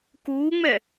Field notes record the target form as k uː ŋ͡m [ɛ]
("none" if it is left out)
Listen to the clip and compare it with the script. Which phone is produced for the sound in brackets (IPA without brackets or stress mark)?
ɛ